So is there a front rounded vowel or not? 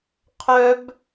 yes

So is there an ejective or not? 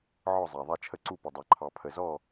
no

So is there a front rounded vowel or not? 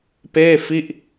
no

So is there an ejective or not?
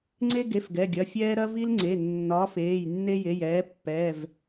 no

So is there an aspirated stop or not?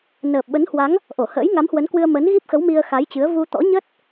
no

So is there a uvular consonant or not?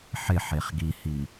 yes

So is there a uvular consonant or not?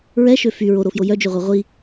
yes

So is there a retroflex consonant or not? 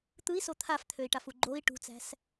yes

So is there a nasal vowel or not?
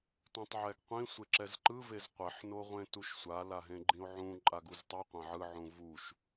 yes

